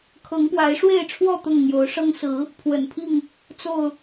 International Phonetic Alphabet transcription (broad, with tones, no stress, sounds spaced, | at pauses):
kʰ ɤ˨˦ ŋ p w a˨˦ ɪ̯ ʂ w e˥˨ ɪ̯ ʈ͡ʂʰ w ɔ˥˨ t̪ ʊ˥˨ ŋ n̪ j o˨˦ ʊ̯ ʂ ɤ˦ ŋ s ɹ̩˨˦ | pʰ w ə̰˨˩ n pʰ i˥˨ ŋ | t͡s o˥˨ ʊ̯